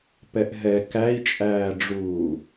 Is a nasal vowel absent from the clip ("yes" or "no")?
yes